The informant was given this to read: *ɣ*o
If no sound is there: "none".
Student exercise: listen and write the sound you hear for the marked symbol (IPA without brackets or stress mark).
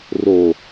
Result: r